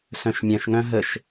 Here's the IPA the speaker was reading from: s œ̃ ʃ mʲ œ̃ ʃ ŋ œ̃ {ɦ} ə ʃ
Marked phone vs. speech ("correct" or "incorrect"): correct